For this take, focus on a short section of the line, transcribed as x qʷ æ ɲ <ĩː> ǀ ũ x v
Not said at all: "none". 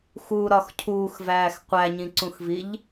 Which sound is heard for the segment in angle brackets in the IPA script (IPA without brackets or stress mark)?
ĩ